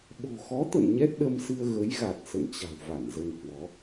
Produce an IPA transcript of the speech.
ɓ o̤˨˩ x ɔ˨˦ t̪ ə̰˧˨ n ɲ ɛ˦˥ t̚ ɗ ə˧ m s ɨ˧ ə̯ ɣ ə˨˦ j ɣ a˨˩ t̚ s ə̰˧˨ n t͡ɕ a̤˨˩ w v a˧˩ n z ə˧ n h w ɔ˨˦

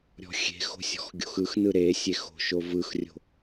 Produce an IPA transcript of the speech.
ɾʲ ɔ̤ xʲ e̤ x o̤ sʲ ɔ̤ x ɡʲ o̤ x ɯ x n ɯ ɾ e sʲ e x o̤ ʃ o v ɯ x rʲ o̤

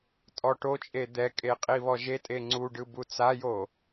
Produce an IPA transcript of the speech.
tʼ ɔ ʈ o t͡ʃʼ e d̪ ɛ kʼ e qʼ i β ɔ ʒ e tʼ e ŋ͡ǀ u ɖ ɯ b u t͡s a j o

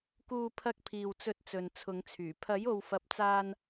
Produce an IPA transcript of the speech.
k uː˧ pʰ ɐ˧ k̚ pʰ iː˨ w t͡s ɵ˨˥ t̚ t͡s ɵ˨ n t͡sʰ ʊ˨˧ ŋ t͡sʰ yː˨˩ pʰ ɐ˨˥ j o˨ w f ɐ˨ p̚ t͡s aː˧ n

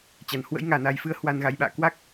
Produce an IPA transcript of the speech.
t͡ɕ a˧˩ n h w ə̰˧˥ j ŋ aː˧˩ n a˨˩ j f ɨ˧ ə̯ h w a˨˩ n ɣ a˧˩ j ɓ a̰ː˧˨ k w a˦˥ k̚

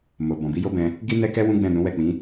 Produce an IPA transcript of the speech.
m o˨ b ɔ̃˨ b i˨˦ j o˦ b ɛ̃˧ | ɡ i˦ n ɛ˦ k ɛ˦ w ũ˦ ɡ͡b ɛ̃˦˨ n ũ˨˦ w ɛ˦˨ k͡p ĩ˨˦

